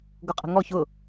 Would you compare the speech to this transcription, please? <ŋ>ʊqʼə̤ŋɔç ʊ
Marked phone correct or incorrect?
incorrect